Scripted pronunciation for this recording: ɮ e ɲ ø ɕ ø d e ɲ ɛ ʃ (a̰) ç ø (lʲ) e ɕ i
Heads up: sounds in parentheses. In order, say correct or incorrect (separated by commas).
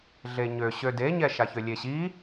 incorrect, correct